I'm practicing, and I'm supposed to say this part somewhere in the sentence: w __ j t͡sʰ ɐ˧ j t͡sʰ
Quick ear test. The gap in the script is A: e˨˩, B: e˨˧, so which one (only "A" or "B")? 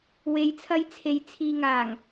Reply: B